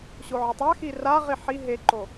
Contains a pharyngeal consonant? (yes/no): yes